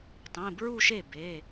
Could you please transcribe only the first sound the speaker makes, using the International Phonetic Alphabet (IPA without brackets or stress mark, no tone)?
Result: tˤ